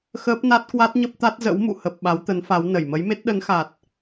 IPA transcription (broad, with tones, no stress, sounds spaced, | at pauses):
x əː˦˥ p̚ n a˦˥ t̚ k w a˦˥ t̚ ɲ ə˦˥ p̚ t̪ a˦˥ t̚ z ə̰˧˥ w m ṵ˧˨ h ə˨˩ p̚ ɓ a˨˦ w t̪ ə˨˦ n f a˨˦ w n ə˧˩ j m ə˨˦ j m e˦˥ t̚ ɗ ə˨˦ n x a˨˩ t̚